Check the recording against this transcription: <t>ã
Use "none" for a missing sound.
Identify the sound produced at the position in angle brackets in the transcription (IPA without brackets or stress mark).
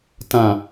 t